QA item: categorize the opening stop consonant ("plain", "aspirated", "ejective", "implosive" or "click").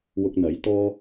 plain